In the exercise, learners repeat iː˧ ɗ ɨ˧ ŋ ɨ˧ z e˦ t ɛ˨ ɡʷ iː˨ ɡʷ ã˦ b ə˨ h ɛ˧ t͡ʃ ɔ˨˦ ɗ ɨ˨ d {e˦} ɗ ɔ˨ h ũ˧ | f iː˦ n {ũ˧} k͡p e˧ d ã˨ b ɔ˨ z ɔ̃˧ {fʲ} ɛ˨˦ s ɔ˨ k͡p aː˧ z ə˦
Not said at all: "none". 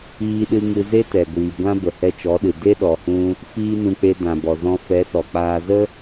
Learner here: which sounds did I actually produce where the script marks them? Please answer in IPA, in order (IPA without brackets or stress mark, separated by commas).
e˦, ũ˧, f